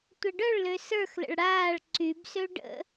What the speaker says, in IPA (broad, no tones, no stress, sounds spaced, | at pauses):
tʷ ə ɖ œ ɭ l ø s ə˞ x l ə̰ ɭ ɽ aː ɭ ǀ y b s ø ɖ ə̰